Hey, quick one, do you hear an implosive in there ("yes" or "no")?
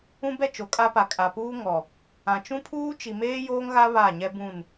no